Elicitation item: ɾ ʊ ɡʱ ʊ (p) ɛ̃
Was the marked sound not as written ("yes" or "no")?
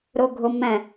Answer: yes